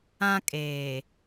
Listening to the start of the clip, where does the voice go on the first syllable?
high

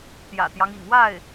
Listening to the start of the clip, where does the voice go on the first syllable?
low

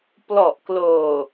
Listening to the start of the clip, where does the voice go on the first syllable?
low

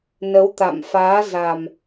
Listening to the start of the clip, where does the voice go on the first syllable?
rising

